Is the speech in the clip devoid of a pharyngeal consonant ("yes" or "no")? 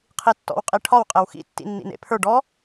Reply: yes